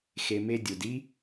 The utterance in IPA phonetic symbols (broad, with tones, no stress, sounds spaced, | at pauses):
x e˧ m e˦ dʲ u˨ d i˦